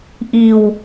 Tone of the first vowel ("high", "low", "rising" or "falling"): low